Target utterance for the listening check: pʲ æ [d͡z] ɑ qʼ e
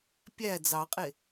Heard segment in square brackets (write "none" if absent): d͡z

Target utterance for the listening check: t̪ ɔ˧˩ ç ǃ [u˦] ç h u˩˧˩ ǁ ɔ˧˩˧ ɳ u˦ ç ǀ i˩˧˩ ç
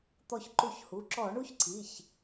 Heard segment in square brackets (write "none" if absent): u˧˩˧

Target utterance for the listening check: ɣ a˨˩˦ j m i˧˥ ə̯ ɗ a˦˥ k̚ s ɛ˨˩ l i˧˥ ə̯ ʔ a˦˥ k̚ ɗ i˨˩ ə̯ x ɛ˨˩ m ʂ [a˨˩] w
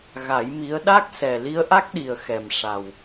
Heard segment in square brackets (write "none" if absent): a˨˩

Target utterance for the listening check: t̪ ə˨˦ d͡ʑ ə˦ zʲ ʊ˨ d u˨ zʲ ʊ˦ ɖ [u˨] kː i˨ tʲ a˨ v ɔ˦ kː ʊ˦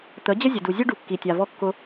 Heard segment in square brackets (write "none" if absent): u˨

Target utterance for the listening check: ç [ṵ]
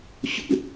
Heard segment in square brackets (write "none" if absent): ṵ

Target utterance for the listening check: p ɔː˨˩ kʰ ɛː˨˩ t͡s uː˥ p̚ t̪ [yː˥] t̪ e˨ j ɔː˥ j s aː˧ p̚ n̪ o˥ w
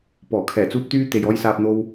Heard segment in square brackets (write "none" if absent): yː˥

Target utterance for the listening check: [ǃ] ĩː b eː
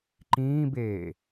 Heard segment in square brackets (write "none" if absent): ǃ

